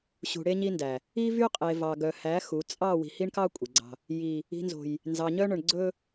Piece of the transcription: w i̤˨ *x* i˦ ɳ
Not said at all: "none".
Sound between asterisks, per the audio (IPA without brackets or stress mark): h